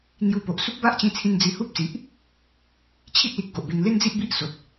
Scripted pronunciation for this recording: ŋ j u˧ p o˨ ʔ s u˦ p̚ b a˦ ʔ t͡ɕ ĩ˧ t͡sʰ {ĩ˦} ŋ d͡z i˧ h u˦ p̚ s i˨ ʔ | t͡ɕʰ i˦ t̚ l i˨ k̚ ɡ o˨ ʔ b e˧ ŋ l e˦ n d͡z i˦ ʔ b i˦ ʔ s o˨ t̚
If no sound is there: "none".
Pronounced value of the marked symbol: ĩ˧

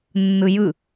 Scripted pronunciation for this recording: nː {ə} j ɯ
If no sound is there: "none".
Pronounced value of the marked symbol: ɯ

